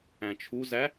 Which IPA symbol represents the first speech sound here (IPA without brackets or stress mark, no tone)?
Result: æ̃